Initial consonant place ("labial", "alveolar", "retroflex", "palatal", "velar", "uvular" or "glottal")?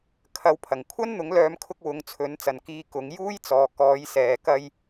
velar